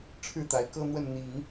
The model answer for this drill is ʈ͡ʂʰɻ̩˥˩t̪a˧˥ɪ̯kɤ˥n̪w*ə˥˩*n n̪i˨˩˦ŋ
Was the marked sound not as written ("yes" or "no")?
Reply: no